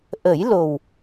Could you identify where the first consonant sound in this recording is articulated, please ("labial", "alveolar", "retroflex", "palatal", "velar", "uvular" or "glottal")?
glottal